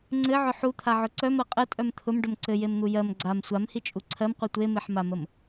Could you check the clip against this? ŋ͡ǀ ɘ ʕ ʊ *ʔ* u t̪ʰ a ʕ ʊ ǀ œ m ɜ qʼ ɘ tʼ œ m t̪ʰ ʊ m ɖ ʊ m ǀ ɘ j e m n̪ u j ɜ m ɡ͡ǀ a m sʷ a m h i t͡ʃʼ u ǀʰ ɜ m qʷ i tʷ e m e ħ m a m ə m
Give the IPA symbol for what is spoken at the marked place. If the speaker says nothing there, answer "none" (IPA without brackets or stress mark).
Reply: ħ